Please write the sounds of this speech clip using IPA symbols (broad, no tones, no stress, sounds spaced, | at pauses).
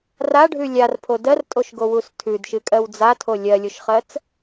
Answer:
r a ɖʱ ʉ lʲ a r pʰ o d ɜ r tʼ o ʃ ɡ o w u s tʰ ʉ d ʃ ɨ kʼ ɜ w d͡z a tʰ o lʲ ɜ lʲ o ʃ χ ɜ t͡s